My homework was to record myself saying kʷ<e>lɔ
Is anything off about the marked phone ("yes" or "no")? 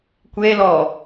no